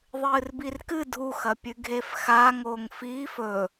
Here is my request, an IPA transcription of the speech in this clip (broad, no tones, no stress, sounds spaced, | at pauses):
ðˤ ɨː r b i r k ɨ dʱ u x ɐ pʲ ʉ ɡʱ e f x a ŋ oː ŋ f iː f ɵ